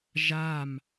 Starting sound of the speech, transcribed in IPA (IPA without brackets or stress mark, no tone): ʒ